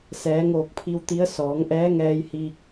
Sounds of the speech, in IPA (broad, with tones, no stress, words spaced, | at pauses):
sɛː˩˧ŋoː˧˩k̚pʰi˧w t̪i˧˥ə̯ sɔː˩˧ŋʔɛː˧˥ ŋɛː˧jhiː˧k̚